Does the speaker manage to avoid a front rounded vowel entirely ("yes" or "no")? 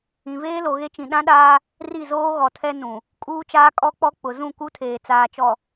yes